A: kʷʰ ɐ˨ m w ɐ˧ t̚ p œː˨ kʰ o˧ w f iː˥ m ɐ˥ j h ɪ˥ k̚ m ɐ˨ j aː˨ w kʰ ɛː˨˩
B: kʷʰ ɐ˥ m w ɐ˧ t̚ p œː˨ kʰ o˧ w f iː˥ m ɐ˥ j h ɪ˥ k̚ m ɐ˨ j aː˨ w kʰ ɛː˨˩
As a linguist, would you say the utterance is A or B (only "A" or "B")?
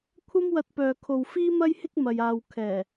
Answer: B